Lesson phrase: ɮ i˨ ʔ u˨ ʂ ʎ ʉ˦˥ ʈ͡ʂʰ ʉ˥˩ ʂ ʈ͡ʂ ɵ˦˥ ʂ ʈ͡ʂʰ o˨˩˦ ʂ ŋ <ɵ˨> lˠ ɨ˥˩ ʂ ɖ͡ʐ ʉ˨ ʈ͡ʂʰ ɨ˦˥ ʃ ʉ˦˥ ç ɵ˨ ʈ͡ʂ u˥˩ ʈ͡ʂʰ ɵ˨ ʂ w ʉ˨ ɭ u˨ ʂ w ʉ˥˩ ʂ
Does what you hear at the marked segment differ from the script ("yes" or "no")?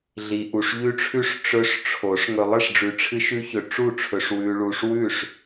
no